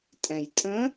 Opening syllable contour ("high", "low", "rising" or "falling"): low